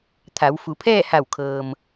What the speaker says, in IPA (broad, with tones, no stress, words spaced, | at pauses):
t̪ʰa˩˧wfu˩˧pʰɛː˥˨ ha˧˩wkʰɤː˩m